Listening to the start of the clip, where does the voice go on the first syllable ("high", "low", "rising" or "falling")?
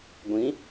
rising